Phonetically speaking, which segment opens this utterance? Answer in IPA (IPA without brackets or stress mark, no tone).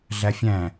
ɮ